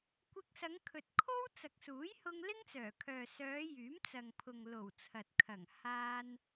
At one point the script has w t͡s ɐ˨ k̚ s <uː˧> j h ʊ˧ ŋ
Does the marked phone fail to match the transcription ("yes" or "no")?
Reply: yes